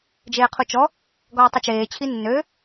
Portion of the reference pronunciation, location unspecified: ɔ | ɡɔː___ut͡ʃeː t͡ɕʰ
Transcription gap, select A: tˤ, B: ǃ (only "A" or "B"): A